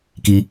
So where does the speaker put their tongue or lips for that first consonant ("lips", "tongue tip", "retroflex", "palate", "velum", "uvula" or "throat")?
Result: velum